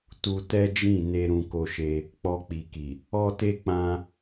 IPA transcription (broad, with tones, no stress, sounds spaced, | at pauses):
t u˧ t ɛ˦ d͡ʒ ĩ˦˨ n e˧ ɾ ũ˧ k o˧ ʃ e˧ | k͡p ɔ˧ k͡p i˨ k i˨ | ɔ˦ t e˦ k͡p ã˧